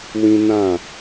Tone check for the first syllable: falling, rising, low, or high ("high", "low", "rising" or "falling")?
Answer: high